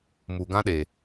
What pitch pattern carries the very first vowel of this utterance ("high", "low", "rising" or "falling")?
low